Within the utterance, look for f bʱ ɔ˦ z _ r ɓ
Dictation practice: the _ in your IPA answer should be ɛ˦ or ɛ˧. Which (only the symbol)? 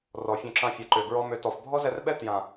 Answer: ɛ˧